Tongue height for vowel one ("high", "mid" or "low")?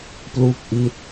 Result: high